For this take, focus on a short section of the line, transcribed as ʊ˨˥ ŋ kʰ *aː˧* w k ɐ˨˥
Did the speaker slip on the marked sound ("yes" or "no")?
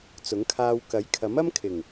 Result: no